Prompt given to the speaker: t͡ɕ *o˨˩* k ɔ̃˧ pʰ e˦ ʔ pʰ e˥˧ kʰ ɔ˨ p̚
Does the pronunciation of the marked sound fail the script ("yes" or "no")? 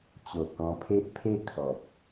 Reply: no